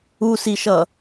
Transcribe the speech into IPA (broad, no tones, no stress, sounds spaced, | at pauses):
u s i ʃ ʌ